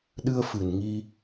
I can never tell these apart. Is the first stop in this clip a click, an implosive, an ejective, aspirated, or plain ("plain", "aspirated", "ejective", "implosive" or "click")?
implosive